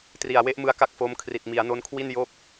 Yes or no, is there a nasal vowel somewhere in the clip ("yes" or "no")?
no